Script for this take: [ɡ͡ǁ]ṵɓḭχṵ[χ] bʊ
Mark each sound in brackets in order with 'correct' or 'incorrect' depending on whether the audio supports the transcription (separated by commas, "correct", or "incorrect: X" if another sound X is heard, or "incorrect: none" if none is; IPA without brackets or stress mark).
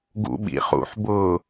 incorrect: ɡ, incorrect: ħ